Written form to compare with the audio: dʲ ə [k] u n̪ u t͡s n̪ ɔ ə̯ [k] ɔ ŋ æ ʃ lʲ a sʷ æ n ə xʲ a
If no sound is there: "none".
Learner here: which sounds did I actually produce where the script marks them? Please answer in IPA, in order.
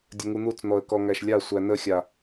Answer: ŋ, k

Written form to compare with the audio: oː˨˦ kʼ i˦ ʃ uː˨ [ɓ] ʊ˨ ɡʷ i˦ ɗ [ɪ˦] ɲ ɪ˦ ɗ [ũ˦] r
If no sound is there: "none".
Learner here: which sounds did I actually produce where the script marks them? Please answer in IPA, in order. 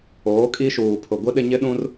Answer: pʰ, ɪ˦, ũ˦

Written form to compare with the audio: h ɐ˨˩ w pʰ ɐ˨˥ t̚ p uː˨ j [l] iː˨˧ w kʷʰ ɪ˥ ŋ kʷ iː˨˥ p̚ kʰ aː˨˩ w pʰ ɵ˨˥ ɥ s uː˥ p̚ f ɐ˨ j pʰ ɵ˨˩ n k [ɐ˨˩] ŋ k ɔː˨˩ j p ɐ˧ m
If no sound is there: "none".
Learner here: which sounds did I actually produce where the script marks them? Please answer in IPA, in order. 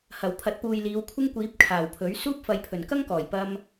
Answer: l, ɐ˥

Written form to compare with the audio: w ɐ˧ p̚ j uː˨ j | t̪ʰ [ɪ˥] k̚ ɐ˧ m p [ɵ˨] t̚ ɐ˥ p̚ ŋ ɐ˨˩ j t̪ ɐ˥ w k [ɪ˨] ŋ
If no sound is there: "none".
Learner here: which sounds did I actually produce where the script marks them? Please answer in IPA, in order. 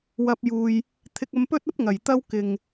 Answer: ɪ˧, ɵ˥, ɪ˨

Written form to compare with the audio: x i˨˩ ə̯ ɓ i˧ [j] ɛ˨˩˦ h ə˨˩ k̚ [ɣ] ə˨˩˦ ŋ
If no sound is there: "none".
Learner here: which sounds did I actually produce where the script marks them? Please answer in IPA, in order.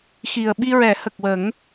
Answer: ɹ, w

